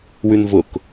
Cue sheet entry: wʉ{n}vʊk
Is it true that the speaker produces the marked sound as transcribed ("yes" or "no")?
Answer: yes